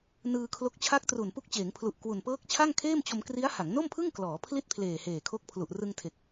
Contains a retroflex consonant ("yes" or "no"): no